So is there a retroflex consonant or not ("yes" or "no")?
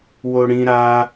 yes